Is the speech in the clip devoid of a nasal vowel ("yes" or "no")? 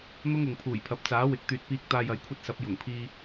yes